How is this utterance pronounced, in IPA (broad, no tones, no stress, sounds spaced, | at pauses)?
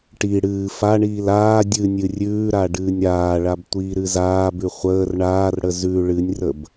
ʈ i ɽ ɨː f a ɳ iː l aː dʲ ɨ nʲ ɨ rʲ ʉː ɾ a ɖ ɨː nʲ ɾ aː ɭ a b tʷ iː ɾ ɨ z aː b ʉ χʷ əː r ɳ aː r ɽ ə z ʉ ɭ ɨ nʲ r ə b